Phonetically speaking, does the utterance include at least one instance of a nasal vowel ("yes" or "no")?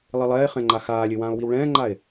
yes